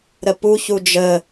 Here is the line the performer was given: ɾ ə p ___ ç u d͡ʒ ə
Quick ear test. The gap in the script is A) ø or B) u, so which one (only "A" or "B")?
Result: B